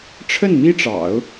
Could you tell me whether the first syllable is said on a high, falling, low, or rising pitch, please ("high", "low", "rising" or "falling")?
falling